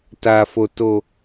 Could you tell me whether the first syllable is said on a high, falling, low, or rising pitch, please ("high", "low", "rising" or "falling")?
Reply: low